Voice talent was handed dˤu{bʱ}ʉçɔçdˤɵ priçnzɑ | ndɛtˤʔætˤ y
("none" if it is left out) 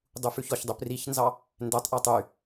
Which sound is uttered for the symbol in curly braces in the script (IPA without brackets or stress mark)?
f